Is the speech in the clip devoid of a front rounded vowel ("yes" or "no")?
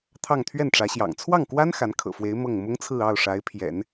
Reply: yes